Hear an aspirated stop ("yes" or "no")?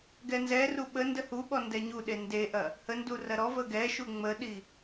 no